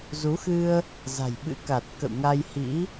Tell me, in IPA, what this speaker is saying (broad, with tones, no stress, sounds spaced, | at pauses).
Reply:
z u˨˦ x ɨ˧ ə̯ | z a̤˨˩ j ɓ ɨ̰˧˥ k a˨˩ t̚ k ə̰˧˨ w ŋ a˧ j h ḭ˧˥